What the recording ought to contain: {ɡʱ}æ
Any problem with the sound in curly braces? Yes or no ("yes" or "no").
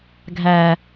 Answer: no